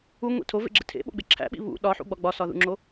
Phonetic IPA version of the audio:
uŋʷḛ tʰovḛɡ͡ǁe tʰḛɓo̰ɡ͡be ǁʰæ̰ɓḭ βṵ ɗɒħṵɡ͡bɒ ɡ͡bɒsɒðṵŋ͡ǁo

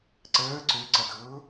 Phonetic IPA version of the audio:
ǀəː ǀøǀʌdʊː

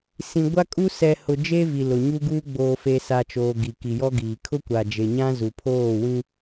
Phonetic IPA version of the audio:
sĩ˨ɡʷa˦kʼu˦ sɛ˨hʊ˨ d͡ʒe˦vi˨lʊ˨ ɲu˦ɡuː˦ ɡ͡boː˨fe˨ sa˨t͡ʃoː˨ ɡi˨ ki˨jɔ˦ɡiː˨ kʰʊ˦kʷa˨d͡ʒe˨ɲã˦ zu˨pʰoː˦˨wĩ˦

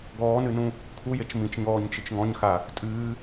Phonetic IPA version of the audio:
ɡɔːnɨnũ | kʰujet͡ʃ mĩt͡ʃɲɔːɲ t͡ʃɨt͡ʃŋɔ̃ɲxa | tʼɨː

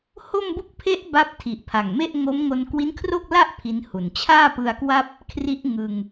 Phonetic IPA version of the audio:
ho˥˩mbu˥˩k̚ pʰe˦˥ʔ ba˦˥p̚tʰi˨˩ʔ pʰa˨˩ŋme˥˩ʔ ŋo˦˥mŋo˧n kwi˦˥nkʰro˥˩k̚la˥˩ʔ pʰi˦˥nhu˨˩n t͡ɕʰaː˥˩pɯ˧a̯kwa˥˩p̚ | kʰri˦˥ʔ ŋɯ˧ŋ

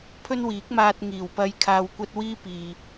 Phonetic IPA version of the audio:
pʰɵ˥nwiː˨˥k̚maː˧t̚ ŋiː˨˩wpɐ˧j kʰaː˧wkʷɐ˥t̚ wiː˥piː˨

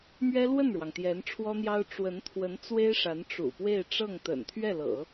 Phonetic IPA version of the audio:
mɥɛ˥lwə˥˩nɻwɑ˩ŋ t̪jɛ˧˥nʈ͡ʂʰwɔ˥n̪jɑ˥ʊ̯ ʈ͡ʂwə˧˥n t̪ʰwə˧˥n t͡swe˥ɪ̯ʂa˧˥n ʈ͡ʂṵ˨˩pwe˥˧ɪ̯ ʈ͡ʂɤ˥˩ŋt̪ə̰˨˩n t̪ʰɥɛ˥˩lɤ̰˨˩˦

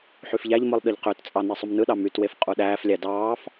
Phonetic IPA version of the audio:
ħyfʎæʎmɯlˠ ɗɯʎqøtt͡sʼɑ nesˤumnɯɗɑ mytwef qʼuɗæːflʲæ dɑːf

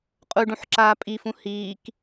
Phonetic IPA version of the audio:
qʼuɖũħǁaː pʼifũ hiːk

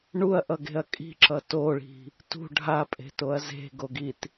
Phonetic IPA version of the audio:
ɳuɐ̯ʔʌɡe̤ɐ̯ kʼi̤ǁʌ toɭi̤ | tṳ ɖʱapʼe̤toɐ̯ ze̤ɡoɡit

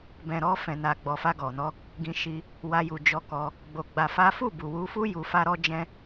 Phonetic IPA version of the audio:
bɛ̃˨ɾɔ˧fɛ̃˨ na˨ ɡ͡bɔ˨fa˧ɡɔ˨nɔ˧ | ɡĩ˧ ʃi˧ | wa˧ju˨ d͡ʒɔ˧kɔ˧ | ɡ͡bo˧ɡ͡ba˧fa˦ fu˦˨bu˨wu˧fu˦ ju˧fa˦ɾɔ˦d͡ʒɛ̃˦

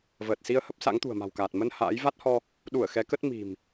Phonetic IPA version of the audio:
vəː˨˩t̚si˧ə̯hə˦˥p̚ sa̰˧˥ŋt̪ṳ˨˩ə̯ma̤˨˩wkaː˨˩t̚ mə˧n ha̰ː˧˥j va˦˥t̚hɔ˧ | ɗu˧˩ə̯ xɛ˨˦kə˦˥t̚ mi̤˨˩m

